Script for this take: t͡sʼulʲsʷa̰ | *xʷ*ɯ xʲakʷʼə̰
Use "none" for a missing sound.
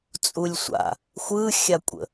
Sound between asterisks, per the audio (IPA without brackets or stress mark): xʷ